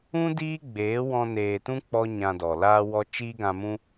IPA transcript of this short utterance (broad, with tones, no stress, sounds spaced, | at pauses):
ũ˦ d iː˦ ɡ͡b eː˨˦ w ɔ̃˧ n eː˨ t ũ˦ k͡p ɔ˦ ɲ ã˧ d ɔ˨ l aː˧ w ɔ˧ t͡ʃ iː˦ ɡ ã˧ m ũ˦